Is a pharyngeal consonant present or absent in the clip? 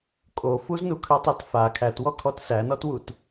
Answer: absent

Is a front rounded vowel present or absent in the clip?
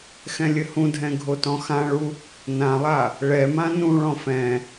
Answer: absent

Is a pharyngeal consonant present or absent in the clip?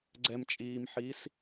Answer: present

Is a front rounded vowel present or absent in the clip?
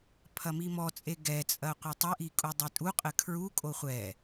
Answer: absent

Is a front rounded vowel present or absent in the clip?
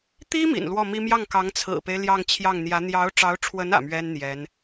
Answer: absent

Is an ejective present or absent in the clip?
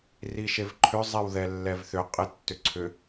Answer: present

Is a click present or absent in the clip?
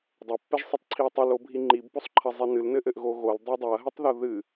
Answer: present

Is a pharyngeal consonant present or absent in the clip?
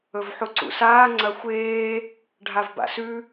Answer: present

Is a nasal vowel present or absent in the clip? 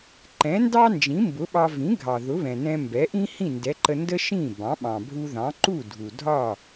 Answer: present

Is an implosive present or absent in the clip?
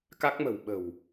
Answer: present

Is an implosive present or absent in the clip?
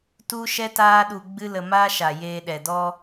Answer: present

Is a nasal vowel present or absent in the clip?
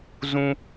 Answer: present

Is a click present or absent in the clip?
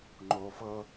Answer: present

